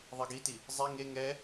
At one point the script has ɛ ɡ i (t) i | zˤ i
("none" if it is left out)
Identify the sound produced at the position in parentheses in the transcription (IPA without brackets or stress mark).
t